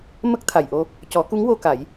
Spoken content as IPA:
m ə˦˥ k̚ t̪ʰ a˨˩ j ʔ o˧ | c ɔ˨˩˦ k u˧˥ ŋ w o˧ k a˨˩˦ j

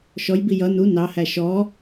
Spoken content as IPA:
ʃ ɔ j b i j ʌ n u n ɑ h æ ʃ ɔ

